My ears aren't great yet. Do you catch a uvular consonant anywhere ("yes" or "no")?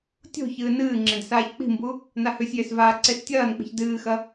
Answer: no